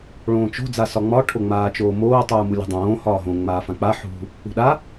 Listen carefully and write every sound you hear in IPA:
ɭõːt͡ʃo̤ d͡zasɒŋ͡mɒ ʈʰoŋ͡maːt͡ʃoːmoː tˤuːmulʲo̤dˤõː hɒːɦõ ŋ͡maːfãk͡pa ħṳ | ṳɗa

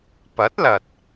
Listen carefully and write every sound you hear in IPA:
pɐ˨˥t̚lɐ˨t̚

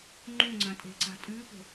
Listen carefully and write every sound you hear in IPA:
ŋ͡ǃũŋ͡ǀɐ̃tʼe̤ǀa̤ tʼʉpo̤

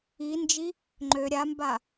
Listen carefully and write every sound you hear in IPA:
ind͡ʒi | ŋ͡ǃø ɾʲamba

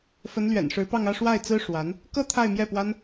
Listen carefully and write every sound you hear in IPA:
fə˧˥nlɥɛ̰˨˩nʂɻ̩˧˥pɑ˥˧ŋ ä˥˧ʂwa˥˩ɪ̯t͡sɹ̩˥ ʂwa˧˥n | kɤ˥˧ t̪ʰa˥˧ɪ̯mjɛ˥˩pwa˥n

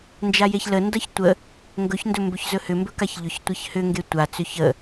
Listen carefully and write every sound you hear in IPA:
nd͡ʒajeçləndʌç tʷə | ŋɡɵçndɵ mbɵçzɵhʏmbɵ kaçʎʏçtʷeç hʏŋɡe tʷat͡sʏ çə

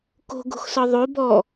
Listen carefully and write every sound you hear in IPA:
ko̤ɡo̤xsɒ ðˤo bɔ

